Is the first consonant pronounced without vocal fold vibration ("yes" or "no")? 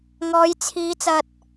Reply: no